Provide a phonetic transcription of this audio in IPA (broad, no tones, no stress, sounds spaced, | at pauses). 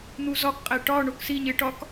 n̪ u z ɒ k qʼ æ ʈ ɒ ɳ o k s i ɲ e ʈ ɒ k